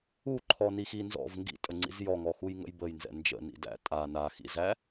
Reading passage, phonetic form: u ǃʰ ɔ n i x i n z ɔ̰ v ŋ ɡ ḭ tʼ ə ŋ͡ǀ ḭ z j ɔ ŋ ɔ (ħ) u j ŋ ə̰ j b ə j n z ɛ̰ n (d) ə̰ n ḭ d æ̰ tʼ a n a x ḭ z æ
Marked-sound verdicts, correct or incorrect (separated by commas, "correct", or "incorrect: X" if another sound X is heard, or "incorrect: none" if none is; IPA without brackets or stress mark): incorrect: x, incorrect: d͡ʒ